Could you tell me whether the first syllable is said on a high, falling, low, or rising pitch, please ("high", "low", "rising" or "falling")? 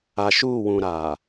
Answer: low